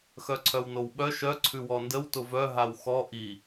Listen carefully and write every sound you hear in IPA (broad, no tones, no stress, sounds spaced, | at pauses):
x œ ǀʰ œ w n o w ɓ œ ʃ œ ǀʰ ʉ w ɔ n d ə w t ʊ v œ ɦ a w x ɔ ʔ i